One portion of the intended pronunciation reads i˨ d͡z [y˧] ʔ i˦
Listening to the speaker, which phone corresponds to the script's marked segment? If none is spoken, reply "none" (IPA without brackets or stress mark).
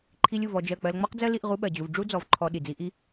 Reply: i˧